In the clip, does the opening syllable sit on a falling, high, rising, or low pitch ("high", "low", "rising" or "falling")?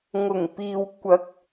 low